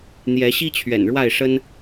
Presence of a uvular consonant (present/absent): absent